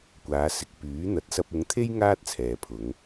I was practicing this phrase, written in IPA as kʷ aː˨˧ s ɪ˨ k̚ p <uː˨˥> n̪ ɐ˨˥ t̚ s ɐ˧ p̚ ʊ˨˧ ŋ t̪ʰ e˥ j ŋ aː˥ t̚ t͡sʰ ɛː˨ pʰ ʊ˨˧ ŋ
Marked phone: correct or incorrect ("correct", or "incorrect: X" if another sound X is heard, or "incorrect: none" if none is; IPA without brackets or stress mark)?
incorrect: yː˨˥